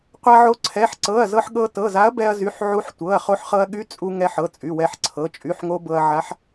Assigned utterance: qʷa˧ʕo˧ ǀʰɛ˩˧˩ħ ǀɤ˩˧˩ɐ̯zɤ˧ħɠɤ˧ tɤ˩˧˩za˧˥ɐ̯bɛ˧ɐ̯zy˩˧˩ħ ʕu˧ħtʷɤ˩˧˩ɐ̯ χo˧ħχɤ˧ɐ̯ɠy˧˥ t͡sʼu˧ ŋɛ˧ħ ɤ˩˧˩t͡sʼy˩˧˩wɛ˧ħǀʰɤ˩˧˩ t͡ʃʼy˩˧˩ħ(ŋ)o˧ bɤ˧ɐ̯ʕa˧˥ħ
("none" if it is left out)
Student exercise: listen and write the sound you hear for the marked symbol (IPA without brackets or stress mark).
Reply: ŋ